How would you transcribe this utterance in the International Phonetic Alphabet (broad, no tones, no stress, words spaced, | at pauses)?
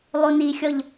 lˠunixʲɔʎ